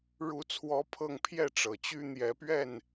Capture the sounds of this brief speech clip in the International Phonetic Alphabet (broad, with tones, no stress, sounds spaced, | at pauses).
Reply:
ɻ u˧˥ t͡sʰ w ɔ˧˥ pʰ ɤ˥˧ ŋ pʰ j ɛ˥˩ ʈ͡ʂ ɤ˨˩ t͡ɕ y˥ n̪ j ɛ˧˥ p ɥ ɛ˥˩ n